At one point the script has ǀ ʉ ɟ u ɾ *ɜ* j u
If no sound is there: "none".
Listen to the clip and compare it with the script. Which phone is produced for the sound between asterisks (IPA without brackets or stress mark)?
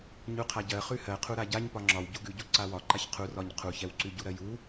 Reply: ɜ